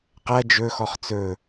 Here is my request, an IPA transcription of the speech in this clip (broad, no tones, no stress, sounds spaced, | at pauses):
q æ d͡ʒ ɵ x ɔ χ t͡s ɵ